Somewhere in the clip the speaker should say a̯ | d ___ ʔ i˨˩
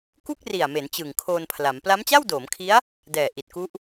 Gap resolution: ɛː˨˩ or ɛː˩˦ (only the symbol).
ɛː˨˩